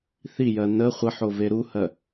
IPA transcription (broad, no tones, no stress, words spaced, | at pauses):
θijɜ nə χʷəħove ɾuhɜ